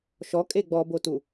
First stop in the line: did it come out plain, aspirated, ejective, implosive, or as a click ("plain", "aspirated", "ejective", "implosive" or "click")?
ejective